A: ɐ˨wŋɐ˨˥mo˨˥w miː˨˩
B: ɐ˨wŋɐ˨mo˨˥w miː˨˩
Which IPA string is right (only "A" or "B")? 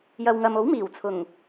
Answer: B